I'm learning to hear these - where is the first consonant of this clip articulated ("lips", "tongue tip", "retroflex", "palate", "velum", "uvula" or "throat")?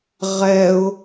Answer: uvula